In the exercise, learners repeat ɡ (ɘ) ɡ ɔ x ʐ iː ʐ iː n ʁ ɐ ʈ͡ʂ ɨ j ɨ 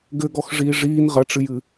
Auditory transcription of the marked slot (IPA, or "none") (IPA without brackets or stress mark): ɘ